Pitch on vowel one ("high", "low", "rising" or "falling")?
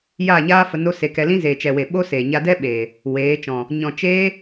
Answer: falling